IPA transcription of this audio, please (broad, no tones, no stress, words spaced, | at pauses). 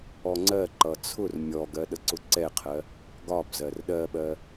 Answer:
ɔŋ͡ǀɜǃʌ t͡sʰʊr mʲɔɡɜ ɗəǀʊǀɛqʰɜ | ɡɒb zɜrɗɜɓɜ